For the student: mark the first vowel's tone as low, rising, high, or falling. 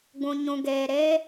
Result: low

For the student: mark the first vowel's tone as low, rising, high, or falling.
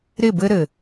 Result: falling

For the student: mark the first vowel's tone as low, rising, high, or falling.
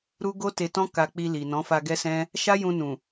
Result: high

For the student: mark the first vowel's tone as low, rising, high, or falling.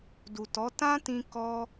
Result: low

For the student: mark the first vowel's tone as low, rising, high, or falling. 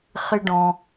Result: low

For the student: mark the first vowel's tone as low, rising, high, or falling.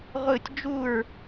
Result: falling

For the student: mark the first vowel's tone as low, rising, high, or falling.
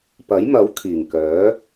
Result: rising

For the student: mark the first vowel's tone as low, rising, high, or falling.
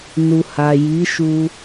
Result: low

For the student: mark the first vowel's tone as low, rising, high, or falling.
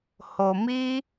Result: low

